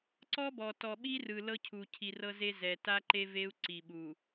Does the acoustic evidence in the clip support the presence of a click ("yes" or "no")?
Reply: yes